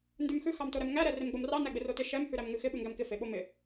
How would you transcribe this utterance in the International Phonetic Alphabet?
ndʉmxʉ xɑmtoɾɛmŋæ ɾɛremɡ͡bomrɑ næɡ͡bɪrotɪ ʃɛm hʉɾæmŋʉxɪ ɓʉŋɡæmkɪ feɓomɪ

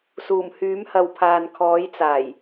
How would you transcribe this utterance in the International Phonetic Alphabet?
suː˨˩mhyː˨˥mhɐ˨wpʰaː˨n kʰɔː˨˥jt͡saː˨˩j

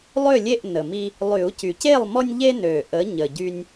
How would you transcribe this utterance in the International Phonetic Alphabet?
lˠʏ˥˨lʲe˥˨ʔ nə˨˩mi˦ | lˠy˨˩˦u̯cy˨˩c e˥˨lˠmɔ˦nʲʎe˦ nø˨˩ʔə˨˦ ɲə˨˩ɟy˦nʲ

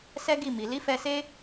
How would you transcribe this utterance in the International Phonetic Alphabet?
sɛ˦ɡi˦˨mi˨ li˨˦fɛ˧se˦

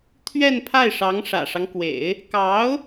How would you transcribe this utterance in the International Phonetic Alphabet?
t̪ʰɥɛ˥˧npʰa˥˩ɪ̯ʂɑ˧˥ŋ ʂä̰˨˩ʂɑ˦ŋkwḛ˨˩˦ɪ̯ | kɑ˧˥ʊ̯

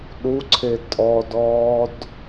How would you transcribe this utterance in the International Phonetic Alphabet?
ɗuǀʰe tʼɔdɔːd

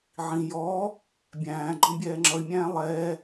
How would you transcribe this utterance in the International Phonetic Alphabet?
ʕĩ jɔː | bʲæ̃ːɡ͡ǃɔ̃ bʲɛːŋ͡ǁʌi̯mʲæ̃ː lˠɛː

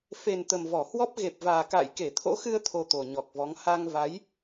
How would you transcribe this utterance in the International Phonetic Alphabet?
fe˨˩n t̪ə˨˩mvɔ˧˩hwɔ˦˥p̚ ɣe˨˩p̚vaː˨˩ka̰ː˧˨j ke˧˩t̪ʰo̰˧˥xɨ˧ə̯ t̪ʰo˧t̪o˨˩ɲɔ˨˩k̚vɔ˨˦ŋ ha˧ŋva˨˦j

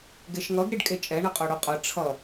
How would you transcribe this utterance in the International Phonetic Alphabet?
ɡeʃŋʌɡ ɾiɖkʼet͡ʃʼɛ ɳʌqʼoɽoqʼʌ ʈ͡ʂʰʌ

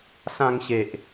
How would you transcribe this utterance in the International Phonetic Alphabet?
sã˧ŋɕe˨ʔ

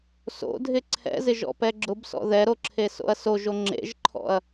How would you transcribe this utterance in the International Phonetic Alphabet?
so̰dʱɪ ǀʰɛ̰zɪʒɔ̰pɛ ɡ͡ǁʊbsɔ̰ ðɛɾoǁʰeso̰ɐ̯ soʒo ŋ͡ǁḛʒǃʰɔ̰ɐ̯

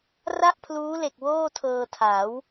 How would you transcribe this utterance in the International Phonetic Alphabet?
ra˥˩ʔpʰluː˦˥le˨˩k̚ woː˥˩tʰɤː˧ tʰa˩˦w

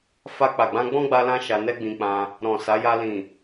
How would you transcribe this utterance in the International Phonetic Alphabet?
fa˧ k͡pa˨ɡ͡bã˧ ɡ͡bɔ̃˦ɡ͡ba˧lã˧ ʃa˧nɛ˦ɡ͡bĩ˧k͡pã˧ | ɾɔ̃˨ sa˨˦ja˧ lĩ˨

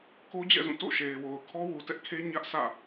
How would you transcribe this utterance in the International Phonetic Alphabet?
ko˦d͡ʑɛ̰˦˨zũ˦˨ to̰˦˨ ʃe˨ɪ̯wo˨ʊ̯ kʰɔ˦wu˨tɛ˦ʔkʰe˦ ɲä˦ʔsʰä̰˦˨

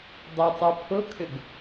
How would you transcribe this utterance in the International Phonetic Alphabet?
dˤʊtˤu pʰʊkʰʏɡ

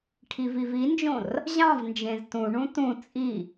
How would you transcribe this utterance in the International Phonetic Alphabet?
ʈʰivivind͡ʒõr | ʑɑ̃vnd͡ʒẽz tũɳũ tũ t͡sʼi

